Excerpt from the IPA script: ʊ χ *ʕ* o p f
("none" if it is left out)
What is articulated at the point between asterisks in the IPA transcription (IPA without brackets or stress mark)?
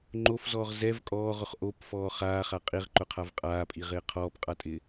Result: ʔ